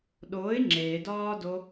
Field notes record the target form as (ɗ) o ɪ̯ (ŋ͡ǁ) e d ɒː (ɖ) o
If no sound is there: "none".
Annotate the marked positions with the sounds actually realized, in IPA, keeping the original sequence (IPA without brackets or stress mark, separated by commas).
ɗ, ŋ͡ǁ, d